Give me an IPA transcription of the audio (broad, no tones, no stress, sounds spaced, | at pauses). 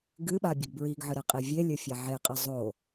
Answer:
ɡ ɨ ɓ a bʲ ɘ ɡ b ɹ i ɡ ʕ ɨ ɾ ɛ qʼ i vʲ e lʲ ɘ fʲ a ʕ e qʼ ɛ zˤ o